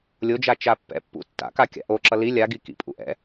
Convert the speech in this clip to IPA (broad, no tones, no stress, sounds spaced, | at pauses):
lʲ o d͡ʒ a t͡ʃ a pː ɛ̰ pː ṵ tː a̰ k a kʲ a̰ ʔ o ǁ ʌ l i lʲ a ɡ i k ḭ pʼ ṵ ʔ ɛ̰